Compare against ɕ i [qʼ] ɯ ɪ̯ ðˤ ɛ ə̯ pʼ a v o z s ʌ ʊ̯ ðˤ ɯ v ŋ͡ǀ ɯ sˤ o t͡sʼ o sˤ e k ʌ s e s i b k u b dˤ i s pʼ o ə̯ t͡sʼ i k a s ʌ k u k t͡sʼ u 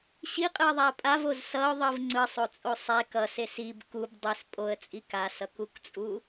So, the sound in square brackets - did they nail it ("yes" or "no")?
yes